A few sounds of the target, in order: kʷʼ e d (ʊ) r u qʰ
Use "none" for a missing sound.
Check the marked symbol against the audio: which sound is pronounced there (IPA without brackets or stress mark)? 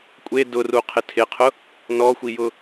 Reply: ʊ